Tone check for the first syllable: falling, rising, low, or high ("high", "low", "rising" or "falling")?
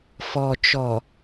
low